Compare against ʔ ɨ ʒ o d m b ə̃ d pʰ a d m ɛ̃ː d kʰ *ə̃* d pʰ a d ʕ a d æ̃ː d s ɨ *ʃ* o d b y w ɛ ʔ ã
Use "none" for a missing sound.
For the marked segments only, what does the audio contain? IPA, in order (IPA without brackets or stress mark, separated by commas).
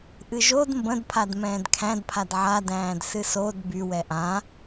æ̃, s